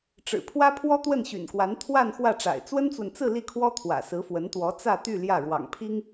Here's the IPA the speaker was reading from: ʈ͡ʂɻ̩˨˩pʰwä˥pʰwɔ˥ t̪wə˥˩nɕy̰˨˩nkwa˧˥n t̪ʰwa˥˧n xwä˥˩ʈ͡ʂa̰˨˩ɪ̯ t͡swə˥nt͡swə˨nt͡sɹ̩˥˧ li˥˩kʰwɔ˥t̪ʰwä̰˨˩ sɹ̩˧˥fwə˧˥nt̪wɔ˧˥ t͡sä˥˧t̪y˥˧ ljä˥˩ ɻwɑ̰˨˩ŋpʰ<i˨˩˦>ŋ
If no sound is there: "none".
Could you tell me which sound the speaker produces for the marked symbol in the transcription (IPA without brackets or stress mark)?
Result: i˥